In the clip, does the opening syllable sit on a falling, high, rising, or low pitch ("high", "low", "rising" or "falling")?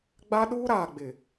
high